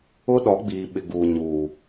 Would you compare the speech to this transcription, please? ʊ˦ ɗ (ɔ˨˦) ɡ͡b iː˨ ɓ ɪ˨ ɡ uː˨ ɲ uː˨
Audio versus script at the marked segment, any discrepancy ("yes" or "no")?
no